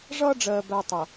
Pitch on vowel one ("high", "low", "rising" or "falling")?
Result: high